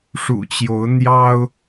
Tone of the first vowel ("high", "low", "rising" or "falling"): low